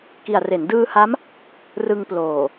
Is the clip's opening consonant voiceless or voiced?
voiceless